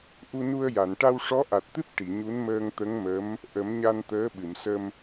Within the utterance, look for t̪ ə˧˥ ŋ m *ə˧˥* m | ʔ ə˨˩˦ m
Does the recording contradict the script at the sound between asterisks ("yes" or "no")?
no